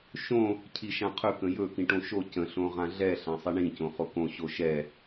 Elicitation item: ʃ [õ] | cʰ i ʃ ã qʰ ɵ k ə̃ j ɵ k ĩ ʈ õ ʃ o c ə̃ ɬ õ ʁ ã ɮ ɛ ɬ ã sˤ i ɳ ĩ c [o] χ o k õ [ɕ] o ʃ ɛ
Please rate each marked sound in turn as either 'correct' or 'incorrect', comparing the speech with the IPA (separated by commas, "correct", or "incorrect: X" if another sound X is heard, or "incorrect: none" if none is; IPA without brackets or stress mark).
correct, incorrect: õ, correct